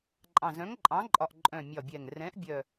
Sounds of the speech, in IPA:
ǃʼ ɑ̃˨˩ z œ̃˨˥ ŋ ǃʼ ɑ̃˨˥ ǃʼ ɒ˨˩ ʔ ǃʼ œ̃˨˩ mʲ ɒ˨˩ bʲ ɛ˨˩ ŋ r ɛ̃˨˥ ʔ bʲ œ˨˩

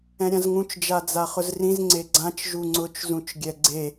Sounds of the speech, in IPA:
ɛ̃ ɾʲ ã z ŋ ũ t͡ʃ d͡ʒ a d͡z a χ ʊ z r ĩ z ŋ͡ǀ e ɡ͡ǀ ã t͡ʃ ʒ u ŋ͡ǀ ʊ t͡ʃ z ũ t͡ʃ ɡʲ ɛ ɡ͡ǀ e

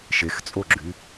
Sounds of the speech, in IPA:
ʃ e x t͡sʼ o ɡ͡ǁ y

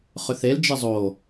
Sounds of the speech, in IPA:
χ ʏ θ e l d͡ʒ e zˤ o

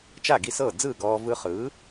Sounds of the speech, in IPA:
t͡ʃ a˥˩ ɡ i˥˩ s ɤː˥˩ d͡z ɯː˥˩ ɡ ɔː˧ v ɯ˧ χ ɯː˩˥

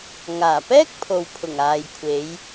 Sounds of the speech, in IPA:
ŋ aː˨˩ p ɛː˥ k̚ pʰ o˨ w pʰ ʊ˨˩ ŋ aː˨ j kʷʰ e˨˧ j

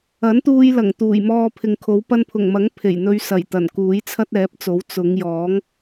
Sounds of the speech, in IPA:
ɐ˨˥ n t̪ uː˧ j l ɐ˨˩ ŋ t̪ uː˨˩ j m ɔː˧ pʰ ɪ˨ ŋ kʰ o˨˥ w p ɐ˧ n pʰ ʊ˨˩ ŋ m ɐ˨˥ ŋ pʰ e˨˩ j n̪ ɵ˧ ɥ s ɐ˨˩ j t̪ ɐ˨˩ n k uː˨˥ j t͡sʰ ɐ˥ t̚ ɛː˨˥ p̚ t͡s o˨˥ w t͡s ʊ˨˧ ŋ j ɔː˨˥ ŋ

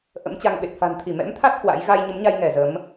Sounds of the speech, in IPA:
ʔ ə̰˧˥ m t͡ɕ a˧ ŋ ɓ e˨˩ t̚ f a̤˨˩ n t̪ʰ i˧˩ m ɛ̰˧˥ m t̪ʰ a˦˥ t̚ h w a̰˧˥ j ɣ a˧ j ɲ ə˨˦ m ɲ a˧ j ŋ ɛ˧˩ z ə˨˦ m

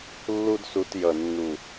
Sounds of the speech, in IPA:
lː u˦ d s u˧ t j ʌ˨ nː u˨

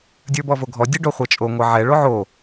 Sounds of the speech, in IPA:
dʲ ə˞ b ɔ v o ɡʱ ɔ dʲ ə ɖ o χʷ ɛ t͡ʃʼ o ŋʷ ɛ ʕ ɛ ɭ o ʕ o

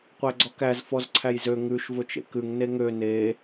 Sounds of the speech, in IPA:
qʷ æ ɡ͡ǀ ɔ k æ z f ɔ z ǀʰ æ j z ø ŋ ʉ ʃ v ɵ t͡ʃ ḛ k ʉ ŋ n e ŋ ø n e

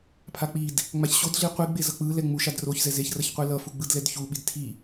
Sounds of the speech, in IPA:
pʰ a k͡p i d | ŋ͡m a ç ɕ o d ɮ i qʷ i ɡ͡b e z ʌ k͡p ɯ l ɛ ŋ͡m u ʃ a d r o ç z ɛ z e ç r ʌ ç qʷ e l ʌ f u ɡ͡b ɯ d l ɛ d ç u ɓ i d tʰ i

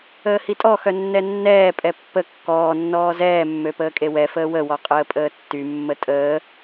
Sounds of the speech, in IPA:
əː h i tʼ ɔ x œ nː ɛ nː ɛː pʼ ɛ pː ə kː ɔː nː ɔː z ɛː mː ø p əː kʼ e w ɛ f əː w ə w ɔ qʼ əː pʼ əː tː y mː ə tʼ əː

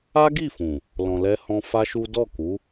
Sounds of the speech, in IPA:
a˦ ɡ i˦˨ f ũ˨ | l ɔ̃˨ l ɛ˧ h ɔ̃˧ f a˦ ʃ u˦ d ɔ˦˨ k u˨˦

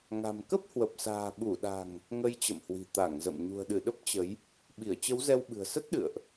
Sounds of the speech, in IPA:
ŋ a̤˨˩ m k ə˦˥ p̚ h w ə˨˩ p̚ s a̤ː˨˩ ɓ u˧˩ ɗ a̤˨˩ ŋ | ŋ ə˧ j t͡ɕ ə̰˧˨ m h w i̤˨˩ t̪ a˧˩ ŋ z ə̰˧˨ m ɲ ṳ˨˩ ə̯ ɗ ɨ˧˩ ɗ ə˦˥ p̚ t͡ɕ ə˨˦ j | ɓ i˧˩ ə̯ t͡ɕ ə˨˦ w z ɛ˧ w ɓ ɨ̤˨˩ ə̯ s ə˦˥ t̚ ɗ ɨ̰˧˨ ə̯ ʔ

